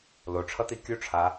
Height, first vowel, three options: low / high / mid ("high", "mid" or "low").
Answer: mid